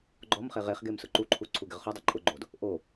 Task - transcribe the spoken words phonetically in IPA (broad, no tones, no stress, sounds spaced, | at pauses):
ɡ͡ǃ ɔ m χ e ʁ e χ ɡ e m s ʊ ǃ u ǃʰ u ǀʰ u ɡ ɪ ʁ χ u dˤ ʊ ǃʼ ʊ ɡ͡ǃ o d | ʔ o